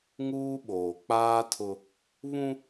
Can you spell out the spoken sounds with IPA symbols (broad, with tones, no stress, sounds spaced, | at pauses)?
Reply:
ŋ uː˦ ɓ oː˨ k͡p aː˦ tʰ ʊ˦ | β ũ˦